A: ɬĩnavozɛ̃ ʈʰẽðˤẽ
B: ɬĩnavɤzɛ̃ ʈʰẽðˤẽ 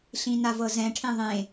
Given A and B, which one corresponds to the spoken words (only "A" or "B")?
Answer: B